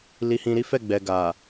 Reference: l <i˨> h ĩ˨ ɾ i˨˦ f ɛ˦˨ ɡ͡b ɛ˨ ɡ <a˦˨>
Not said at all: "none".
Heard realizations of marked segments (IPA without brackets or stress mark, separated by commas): i˨, a˨